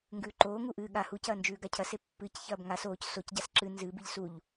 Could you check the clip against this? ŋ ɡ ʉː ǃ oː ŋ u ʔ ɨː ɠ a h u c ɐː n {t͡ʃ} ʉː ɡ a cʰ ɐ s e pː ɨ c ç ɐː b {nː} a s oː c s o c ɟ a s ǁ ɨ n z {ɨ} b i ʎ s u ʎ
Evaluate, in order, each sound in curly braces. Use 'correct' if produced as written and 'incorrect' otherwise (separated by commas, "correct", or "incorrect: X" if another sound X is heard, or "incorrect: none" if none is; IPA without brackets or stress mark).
incorrect: d͡ʒ, incorrect: ŋ, correct